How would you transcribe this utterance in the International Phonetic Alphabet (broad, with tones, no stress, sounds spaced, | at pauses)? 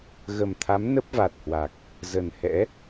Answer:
ɣ ə˨˩ m t̪ʰ a˨˦ m n ə˦˥ p̚ v a˨˩ t̚ h w a˨˩ k̚ | z ə˨˩ n h ɛ̰˧˥